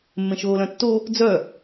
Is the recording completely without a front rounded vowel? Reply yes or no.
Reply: no